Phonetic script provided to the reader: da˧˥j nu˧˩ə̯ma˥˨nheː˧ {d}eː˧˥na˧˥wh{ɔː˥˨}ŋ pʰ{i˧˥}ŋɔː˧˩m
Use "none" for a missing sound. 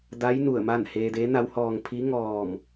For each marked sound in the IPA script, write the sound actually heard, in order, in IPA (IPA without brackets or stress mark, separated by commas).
d, ɔː˧, i˧˥